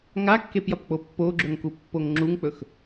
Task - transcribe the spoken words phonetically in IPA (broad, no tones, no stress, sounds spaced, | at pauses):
ŋ a kː e p j ɐ p k͡p o pː o ɡ͡ǁ ɵ ŋ k u pː o ŋ ŋ͡ǁ u ŋ k͡p ɵ x